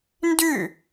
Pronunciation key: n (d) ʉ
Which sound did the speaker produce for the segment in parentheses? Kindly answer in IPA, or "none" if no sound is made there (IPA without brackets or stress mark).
d